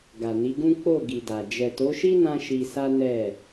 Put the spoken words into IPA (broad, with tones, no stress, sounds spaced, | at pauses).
ɡ a˨ n i˨˦ ɡ ũ˦ k͡p o˦˨ ɡ i˨ d a˨ d͡ʒ ɛ˨ t o˨˦ ʃ i˦ n ã˦ ʃ i˧ s a˦ n ɛ˦˨